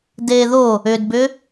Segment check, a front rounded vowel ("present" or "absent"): present